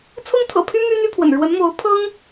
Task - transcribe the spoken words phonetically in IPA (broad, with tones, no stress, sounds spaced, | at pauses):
t͡sʰ ʊ˥ ŋ t̪ʰ ɤ̰˨˩ pʰ y˥ m y˥ n̪ y˥ pʰ w ə̰˨˩ n ɻ w ə˧˥ n m o˧˥ ʊ̯ pʰ ɤ˥ ŋ